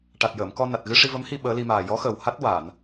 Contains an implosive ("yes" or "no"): yes